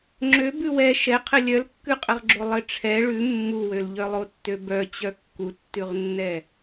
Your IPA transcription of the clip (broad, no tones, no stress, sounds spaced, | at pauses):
ŋ͡ǁ ø b ʉ w ɛ ʃ ɛ qʰ ɘ lʲ œ l kː ʉ qʼ ɘ ʁ ɡ͡ǁ o lˠ ɘ ʈ͡ʂʰ ɛ ɭ ʉ mː u w ø l ʎ œ lˠ o tː ø b œ t͡ɕ œ kː u tː ʉ ʁ nː ɛ